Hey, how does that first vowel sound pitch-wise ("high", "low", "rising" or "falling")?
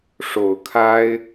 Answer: low